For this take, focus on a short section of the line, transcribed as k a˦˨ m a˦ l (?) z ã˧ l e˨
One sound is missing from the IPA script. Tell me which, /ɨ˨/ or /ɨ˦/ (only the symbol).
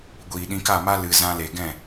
ɨ˨